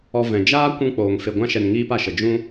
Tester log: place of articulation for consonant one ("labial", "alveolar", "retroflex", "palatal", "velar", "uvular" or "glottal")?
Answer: labial